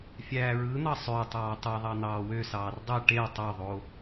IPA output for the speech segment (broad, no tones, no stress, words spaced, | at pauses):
fʲæːɹɯn̪ɑ sˤø tˤɑːtˤeðˤɑ n̪ɑːwøsɑːr dˤi ʈe tˤoðˤo